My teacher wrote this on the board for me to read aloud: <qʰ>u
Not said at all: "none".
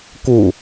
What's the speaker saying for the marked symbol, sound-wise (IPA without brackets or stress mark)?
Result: k